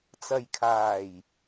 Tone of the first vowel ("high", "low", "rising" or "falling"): low